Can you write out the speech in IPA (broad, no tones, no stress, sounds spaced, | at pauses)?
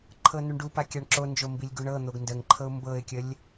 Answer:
ǃʰ ɤ n u ɳ ɖ u p a kʲ a ɳ ǁ o n d͡ʒ o m b i lʲ ɡ u ɳ ɤ n̪ o ɡ n d ə ŋ ǃʰ ɤ ʊ̯ m b ɤ ɪ̯ kʲ ə lʲ